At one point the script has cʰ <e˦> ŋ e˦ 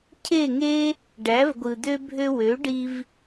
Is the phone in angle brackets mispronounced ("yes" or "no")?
yes